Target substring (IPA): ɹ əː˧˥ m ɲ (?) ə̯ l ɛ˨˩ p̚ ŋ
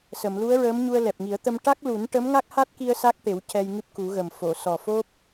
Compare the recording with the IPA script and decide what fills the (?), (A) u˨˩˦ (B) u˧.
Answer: B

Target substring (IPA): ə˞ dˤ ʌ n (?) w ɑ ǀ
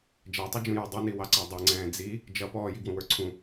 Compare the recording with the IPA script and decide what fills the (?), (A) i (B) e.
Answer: A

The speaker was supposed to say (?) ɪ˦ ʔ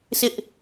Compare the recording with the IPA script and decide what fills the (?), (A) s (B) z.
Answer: A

